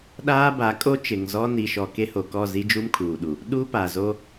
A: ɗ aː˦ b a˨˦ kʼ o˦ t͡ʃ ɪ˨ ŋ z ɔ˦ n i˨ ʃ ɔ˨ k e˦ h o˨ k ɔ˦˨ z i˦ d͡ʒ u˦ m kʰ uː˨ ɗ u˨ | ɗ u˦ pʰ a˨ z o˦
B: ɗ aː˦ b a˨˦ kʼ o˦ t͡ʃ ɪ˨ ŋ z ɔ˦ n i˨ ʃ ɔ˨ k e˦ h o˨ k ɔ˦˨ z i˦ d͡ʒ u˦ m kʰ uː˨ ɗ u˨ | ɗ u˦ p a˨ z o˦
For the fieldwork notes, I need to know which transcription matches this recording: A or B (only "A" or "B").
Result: B